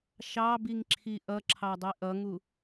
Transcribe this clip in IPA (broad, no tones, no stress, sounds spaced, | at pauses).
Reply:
ʃ ɑ b i ŋ ǁʰ i ʔ ʌ ǁʰ ɑ dˤ i ʔ ʌ ŋ u